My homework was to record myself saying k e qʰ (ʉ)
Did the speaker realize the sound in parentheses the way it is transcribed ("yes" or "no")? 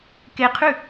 yes